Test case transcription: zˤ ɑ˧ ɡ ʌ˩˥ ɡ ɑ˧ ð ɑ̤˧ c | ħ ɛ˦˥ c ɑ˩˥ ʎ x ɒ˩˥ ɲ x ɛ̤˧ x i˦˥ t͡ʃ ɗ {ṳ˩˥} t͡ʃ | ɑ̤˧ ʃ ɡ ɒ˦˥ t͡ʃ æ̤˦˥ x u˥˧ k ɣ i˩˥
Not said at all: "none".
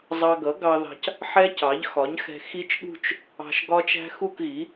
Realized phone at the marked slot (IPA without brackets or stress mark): ṳ˥˧